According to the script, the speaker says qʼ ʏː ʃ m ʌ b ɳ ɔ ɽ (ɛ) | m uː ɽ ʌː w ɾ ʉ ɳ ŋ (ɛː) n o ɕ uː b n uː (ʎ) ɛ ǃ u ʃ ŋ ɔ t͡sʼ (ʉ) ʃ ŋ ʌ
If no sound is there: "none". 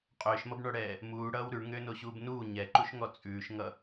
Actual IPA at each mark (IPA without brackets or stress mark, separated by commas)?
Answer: ɛː, ʏː, ɲ, ʉː